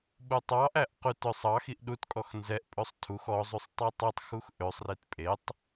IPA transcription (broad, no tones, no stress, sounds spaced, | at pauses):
ɓ u tˤ ɑ ʔ æ ʔ q ʉ t œ sˤ ɑ x i ʔ ɗ u t kʼ ɔ x n z ɛ ʔ pʼ ɵ sˤ tʰ u x ɔ zˤ u sˤ tˤ e tˤ u tˤ x u x ʔ ø sˤ r i t pʼ e tˤ